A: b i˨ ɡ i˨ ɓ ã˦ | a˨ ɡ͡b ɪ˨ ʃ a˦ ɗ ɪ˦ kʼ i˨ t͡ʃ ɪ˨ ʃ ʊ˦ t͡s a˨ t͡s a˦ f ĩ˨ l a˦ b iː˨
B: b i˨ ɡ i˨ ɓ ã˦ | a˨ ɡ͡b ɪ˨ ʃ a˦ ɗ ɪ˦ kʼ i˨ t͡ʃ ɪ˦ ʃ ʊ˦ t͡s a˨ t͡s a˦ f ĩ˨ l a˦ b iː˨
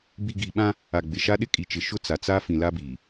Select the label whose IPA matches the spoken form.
A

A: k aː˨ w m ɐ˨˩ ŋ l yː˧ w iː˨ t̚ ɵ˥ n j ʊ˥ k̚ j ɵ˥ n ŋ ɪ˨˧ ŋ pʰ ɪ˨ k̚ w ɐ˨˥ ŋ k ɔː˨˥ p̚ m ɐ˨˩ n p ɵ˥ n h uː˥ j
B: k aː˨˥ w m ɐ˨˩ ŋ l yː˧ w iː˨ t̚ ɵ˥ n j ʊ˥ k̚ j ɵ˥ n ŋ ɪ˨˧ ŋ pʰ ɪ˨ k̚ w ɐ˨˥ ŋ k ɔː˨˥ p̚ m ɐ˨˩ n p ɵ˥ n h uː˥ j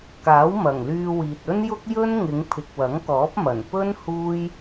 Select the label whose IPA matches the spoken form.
B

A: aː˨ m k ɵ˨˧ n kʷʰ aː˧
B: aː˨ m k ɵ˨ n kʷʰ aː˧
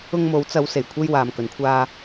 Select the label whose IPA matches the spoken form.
B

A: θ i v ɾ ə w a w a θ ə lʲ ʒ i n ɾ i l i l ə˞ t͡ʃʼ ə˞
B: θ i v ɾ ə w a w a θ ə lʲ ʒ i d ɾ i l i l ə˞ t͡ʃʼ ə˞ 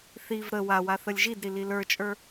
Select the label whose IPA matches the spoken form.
B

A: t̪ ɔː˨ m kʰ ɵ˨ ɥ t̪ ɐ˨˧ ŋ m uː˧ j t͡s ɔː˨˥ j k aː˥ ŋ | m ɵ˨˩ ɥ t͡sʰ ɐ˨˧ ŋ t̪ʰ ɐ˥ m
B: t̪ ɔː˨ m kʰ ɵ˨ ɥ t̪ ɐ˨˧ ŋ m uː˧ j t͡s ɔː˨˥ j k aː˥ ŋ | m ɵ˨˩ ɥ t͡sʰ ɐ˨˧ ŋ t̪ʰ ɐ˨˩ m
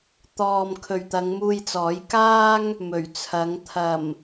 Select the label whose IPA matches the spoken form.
B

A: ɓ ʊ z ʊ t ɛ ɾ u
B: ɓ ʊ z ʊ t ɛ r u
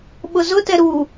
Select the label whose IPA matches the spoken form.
A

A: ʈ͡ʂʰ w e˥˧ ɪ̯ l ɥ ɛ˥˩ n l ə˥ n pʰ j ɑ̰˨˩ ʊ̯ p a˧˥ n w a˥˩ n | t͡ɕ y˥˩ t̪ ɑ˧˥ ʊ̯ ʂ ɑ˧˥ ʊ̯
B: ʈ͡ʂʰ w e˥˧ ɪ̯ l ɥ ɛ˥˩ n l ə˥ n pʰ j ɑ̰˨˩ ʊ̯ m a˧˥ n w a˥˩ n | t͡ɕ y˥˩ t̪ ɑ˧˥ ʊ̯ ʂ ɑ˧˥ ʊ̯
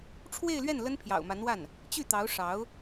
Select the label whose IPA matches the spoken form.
B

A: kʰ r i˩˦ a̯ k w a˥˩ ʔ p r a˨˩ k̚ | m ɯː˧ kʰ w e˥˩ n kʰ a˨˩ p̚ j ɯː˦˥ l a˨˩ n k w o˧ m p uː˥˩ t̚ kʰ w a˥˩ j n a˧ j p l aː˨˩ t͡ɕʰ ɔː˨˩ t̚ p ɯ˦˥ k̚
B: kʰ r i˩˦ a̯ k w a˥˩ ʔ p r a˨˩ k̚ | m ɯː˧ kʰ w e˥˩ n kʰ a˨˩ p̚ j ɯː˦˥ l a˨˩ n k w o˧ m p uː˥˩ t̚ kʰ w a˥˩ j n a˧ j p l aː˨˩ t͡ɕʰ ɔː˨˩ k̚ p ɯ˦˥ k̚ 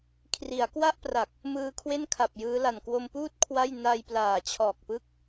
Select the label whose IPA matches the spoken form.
B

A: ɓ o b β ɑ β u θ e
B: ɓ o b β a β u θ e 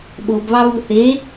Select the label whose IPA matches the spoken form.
A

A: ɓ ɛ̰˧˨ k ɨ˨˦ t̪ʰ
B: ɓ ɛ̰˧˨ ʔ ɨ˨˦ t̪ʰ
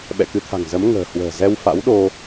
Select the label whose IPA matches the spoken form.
A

